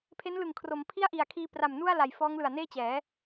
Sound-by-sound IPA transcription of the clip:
pʰe˦˥nlɯ˨˩ŋkʰro˩˦m pʰi˥˩a̯ ʔi˨˩a̯ kʰiː˧ pra˨˩m nu˥˩a̯la˨˩jfɔː˦˥ŋlɯ˨˩a̯ neː˥˩t͡ɕɛː˩˦

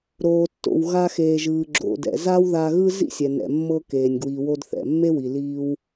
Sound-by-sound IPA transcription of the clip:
ɾoː˩tːo̰˩w ɣa˧xeː˩ ʒɯː˩ɡ͡ǁo̰˩dɛ̰˩ za˥wða˧ɣɯ˥ zḭ˥sʲɛ˩nɛ̰˩ mːɤ˧keː˩nʲ ɡwi˩ wo˧dθɛ̰˩mːe˥wi˩ liː˧w

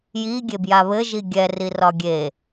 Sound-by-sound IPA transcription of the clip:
jiɡʲebja βɘʒi ɡʲɛri rɒɡʲe

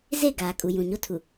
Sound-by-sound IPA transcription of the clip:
ze˦˨ɡaː˨kʼu˨ jũ˨ɲo˦ tʰu˨

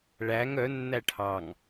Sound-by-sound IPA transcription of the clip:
ɭæŋ œ nːæʈʰɑŋ

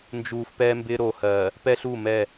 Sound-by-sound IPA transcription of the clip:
nd͡ʒuː˨fpɛː˦mbɪː˦ ɾo˨hɜː˨ | pɛ˦ɬu˦˨mɛ˦˨

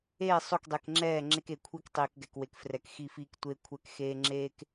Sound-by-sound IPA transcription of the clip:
eː˦˨sˤo˦˨k dˤe˨kŋ͡ǁɛː˦˨ ŋ͡ǁe˦ke˨kʷʰi˦k tˤiː˨kɡɛ˨kwe˨k frɛ˨kxi˦˨fiː˦k tʷe˦kʷʰɛ˦˨k xeː˦ŋ͡ǁeː˦k

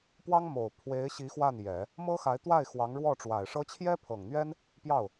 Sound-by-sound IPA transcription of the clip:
pwɑ˥ŋmo˨˩ʊ̯ pʰwe˧˥ɪ̯ɕi˧˥ xwa˥˩njɛ˨˩˦ | mɤ˥xa˧˥ɪ̯t̪wa˥˩ɪ̯ xwɑ˧˥ŋɻwɔ˥˩ ʈ͡ʂwa˨˩ɪ̯ʂɤ˥ t͡ɕʰjɛ˥pʰɤ˨˩ŋn̪ɥɛ˥n | pjɑ˥˩ʊ̯

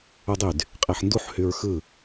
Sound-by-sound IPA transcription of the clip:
udˤyd | qʼeħnduħ hyɹxɯ

